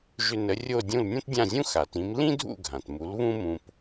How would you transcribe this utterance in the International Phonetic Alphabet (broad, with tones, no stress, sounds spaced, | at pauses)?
ʒ ʏ˧ n ə˩˥ rʲ o˥˩ dʲ ũ˥˩ l nʲ õ˥ t dʲ ã˥˩ zʲ ũ˥ x a˩ t ĩ˩˥ m l ĩ˥ dʱ ṵ˥˩ ɡʱ ã˩ t m u˩˥ l β ũ˥ m ũ˧ p